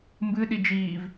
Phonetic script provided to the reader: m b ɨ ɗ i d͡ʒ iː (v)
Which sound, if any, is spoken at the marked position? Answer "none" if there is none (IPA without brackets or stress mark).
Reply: v